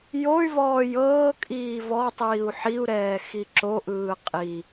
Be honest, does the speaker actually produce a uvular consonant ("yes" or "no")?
yes